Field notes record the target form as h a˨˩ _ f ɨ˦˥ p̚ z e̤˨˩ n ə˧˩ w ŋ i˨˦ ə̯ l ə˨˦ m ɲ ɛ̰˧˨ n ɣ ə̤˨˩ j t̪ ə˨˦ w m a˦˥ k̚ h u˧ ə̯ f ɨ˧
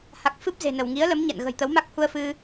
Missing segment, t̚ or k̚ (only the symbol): k̚